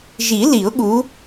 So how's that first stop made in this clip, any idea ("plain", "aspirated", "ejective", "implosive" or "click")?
implosive